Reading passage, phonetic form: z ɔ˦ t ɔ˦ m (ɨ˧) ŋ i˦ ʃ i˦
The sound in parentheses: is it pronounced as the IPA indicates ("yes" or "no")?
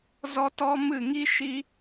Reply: no